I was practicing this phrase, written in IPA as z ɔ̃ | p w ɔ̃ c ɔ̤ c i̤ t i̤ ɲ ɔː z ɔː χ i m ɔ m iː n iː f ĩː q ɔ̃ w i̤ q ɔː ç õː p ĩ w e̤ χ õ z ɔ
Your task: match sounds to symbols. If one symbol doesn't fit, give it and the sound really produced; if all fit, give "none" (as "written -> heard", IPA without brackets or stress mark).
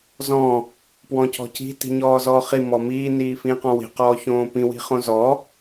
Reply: e̤ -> i̤